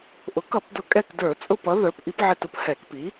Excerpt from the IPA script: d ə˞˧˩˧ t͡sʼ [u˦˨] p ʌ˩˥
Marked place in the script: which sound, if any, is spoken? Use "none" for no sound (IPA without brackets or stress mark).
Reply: ʊ˦˨